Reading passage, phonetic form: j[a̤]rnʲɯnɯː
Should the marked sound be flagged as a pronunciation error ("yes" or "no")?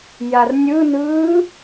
yes